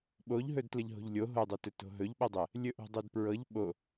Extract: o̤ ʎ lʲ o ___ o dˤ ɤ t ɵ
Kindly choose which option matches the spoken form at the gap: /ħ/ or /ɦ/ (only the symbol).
ɦ